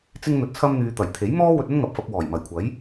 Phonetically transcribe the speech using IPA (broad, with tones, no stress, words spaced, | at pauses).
t͡sɪ˥ŋn̪ɵ˧t̚t͡sʰɐ˥mn̪yː˧ t̪ɐ˨˩jt̪ʰe˨˥j mɔː˥wɵ˧t̚ ɐ˥nŋɐ˨p̚fɐ˧p̚ wɔː˨˩jmɐ˨˩jkʷʰɐ˨˥j